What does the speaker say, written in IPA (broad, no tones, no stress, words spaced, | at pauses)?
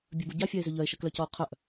bʲœbu ɟafʲae̯zʏ ʎœe̯ʃəklœcɔo̯ qʰœʔ